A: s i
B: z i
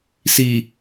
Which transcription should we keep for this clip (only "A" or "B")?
A